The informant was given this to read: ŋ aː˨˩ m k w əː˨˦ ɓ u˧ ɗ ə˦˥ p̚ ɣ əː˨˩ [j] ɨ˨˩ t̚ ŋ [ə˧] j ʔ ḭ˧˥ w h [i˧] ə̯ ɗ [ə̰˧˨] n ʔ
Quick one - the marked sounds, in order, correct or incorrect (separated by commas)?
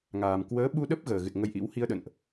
incorrect, correct, correct, correct